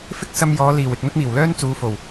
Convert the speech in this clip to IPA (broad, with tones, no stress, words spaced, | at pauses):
fɪ˥k̚ sɐ˧mjɔː˨˧ liː˨˩w ɪ˨k̚ n̪ɐ˥t̚miː˨˩wlœː˥n t͡suː˨˧fo˨˩w